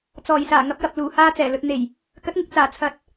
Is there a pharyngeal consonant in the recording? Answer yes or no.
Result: no